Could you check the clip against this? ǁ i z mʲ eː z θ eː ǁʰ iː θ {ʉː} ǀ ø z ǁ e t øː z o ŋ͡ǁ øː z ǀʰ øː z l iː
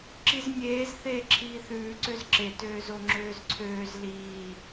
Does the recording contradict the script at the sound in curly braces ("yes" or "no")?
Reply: no